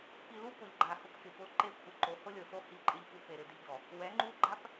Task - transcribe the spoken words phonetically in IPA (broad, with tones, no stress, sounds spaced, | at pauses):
p i˨ l u˦ p ʊ˨ ʎ ɡ͡ǃ a˨ h ʊ˦ p k ɪ˨ p ʊ˦ ǃ e˦ kʷʰ ɪ˨ ǃ o˨˦ h ʊ˦ lʲ o˨ s o˦ h i˦ ǃʼ ɪ˦ ʎ p u˦ p e˨ ɾ ɪ˦ d ɪ˦ ʎ d ɔ˨ | w ɛ˨˦ ŋ͡ǃ u˦ ɡ͡ǃ a˦ p